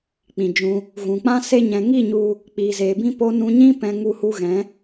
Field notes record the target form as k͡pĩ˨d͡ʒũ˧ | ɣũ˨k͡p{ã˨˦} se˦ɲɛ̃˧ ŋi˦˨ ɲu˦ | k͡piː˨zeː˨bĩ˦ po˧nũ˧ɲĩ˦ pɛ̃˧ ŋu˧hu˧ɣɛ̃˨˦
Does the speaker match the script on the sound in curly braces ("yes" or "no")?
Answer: no